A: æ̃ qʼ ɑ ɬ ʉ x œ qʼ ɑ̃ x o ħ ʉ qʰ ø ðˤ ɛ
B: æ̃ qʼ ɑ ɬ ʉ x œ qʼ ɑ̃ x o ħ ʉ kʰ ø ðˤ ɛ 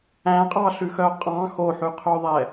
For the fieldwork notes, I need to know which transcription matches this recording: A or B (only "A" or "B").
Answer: A